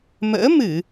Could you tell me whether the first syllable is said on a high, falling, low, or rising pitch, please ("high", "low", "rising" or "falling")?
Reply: rising